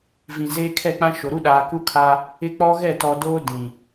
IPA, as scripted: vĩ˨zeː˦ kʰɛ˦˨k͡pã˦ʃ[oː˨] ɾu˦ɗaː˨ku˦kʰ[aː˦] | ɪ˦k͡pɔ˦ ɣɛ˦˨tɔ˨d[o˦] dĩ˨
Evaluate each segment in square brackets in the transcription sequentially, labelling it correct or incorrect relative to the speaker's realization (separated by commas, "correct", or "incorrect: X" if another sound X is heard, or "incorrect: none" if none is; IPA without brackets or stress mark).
incorrect: o˨, correct, incorrect: oː˦